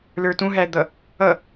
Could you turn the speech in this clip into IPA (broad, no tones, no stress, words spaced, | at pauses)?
lə˞tũɦæd̪ʌ | ʌ